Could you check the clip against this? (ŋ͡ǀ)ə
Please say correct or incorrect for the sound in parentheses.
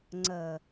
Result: correct